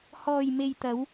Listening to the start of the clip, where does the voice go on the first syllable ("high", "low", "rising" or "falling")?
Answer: low